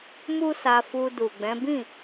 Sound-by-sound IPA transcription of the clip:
mu˦sa˧fu˧du˨ ɡ͡bɛ̃˨˦bĩ˦˨

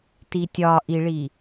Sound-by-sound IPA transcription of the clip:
titʲɒʔiɭi

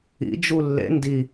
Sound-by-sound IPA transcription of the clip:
ḭ d͡ʒulːḛ ndi

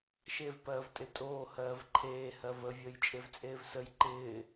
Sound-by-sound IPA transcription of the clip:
ʃev pɜːvtʼɪtʼoː hɜːvǃʰeː hɜvə vʲəːjt͡ʃʼevt͡sʼeːvsəj ǃɪː

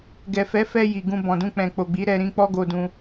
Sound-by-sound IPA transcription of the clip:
ɡɛ˨fɛ˨˦fɛ˧ ji˨ɡũ˧bɔ̃˨dũ˧ k͡pɛ̃˨k͡po˨ɡ͡bi˨˦ ɾɛ˧ɾĩ˧ k͡pɔ˦ɡo˧dũ˧

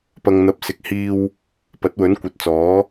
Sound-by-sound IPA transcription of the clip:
pɐ˨ŋn̪ɐ˨p̚sɪ˨k̚hiː˧w | pɐ˨˥t̚wɵ˨˥nkʷɐ˨t̚t͡sɔː˨˥

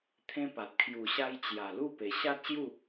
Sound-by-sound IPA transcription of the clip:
t̪ʰẽ˦pa˨t̚ kʰju˨˩ɕa˧j t͡ɕja˨˩lu˥˧pe˨˩ ɕa˦t̚ɕju˥˧

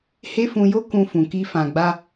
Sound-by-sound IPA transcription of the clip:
he˦fũ˧jo˦ kũ˧fũ˨ki˧ fã˨ɡ͡ba˧

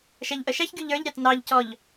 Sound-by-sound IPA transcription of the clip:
ʃæʎʔəʃæçɡʲu ʎə˞ʎɾʲɑt nɑʎcɔʎ

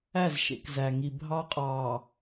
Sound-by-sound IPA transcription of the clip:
æ˦˨zʃḛ˨kzæ˨ŋi˨ bʱɑ˦ qʼɑː˨

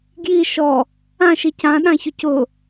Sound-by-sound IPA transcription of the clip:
ɡji ʃɔ | ãʃi cãɗãçʊ cʊ

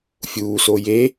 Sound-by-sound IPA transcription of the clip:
fʲuːso je

